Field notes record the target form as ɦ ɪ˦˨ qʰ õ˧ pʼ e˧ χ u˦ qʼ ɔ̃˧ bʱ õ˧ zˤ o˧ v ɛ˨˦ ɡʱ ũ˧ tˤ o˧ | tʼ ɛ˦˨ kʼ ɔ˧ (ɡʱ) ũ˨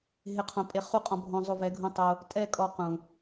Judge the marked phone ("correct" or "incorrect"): incorrect